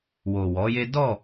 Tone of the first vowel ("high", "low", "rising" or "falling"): low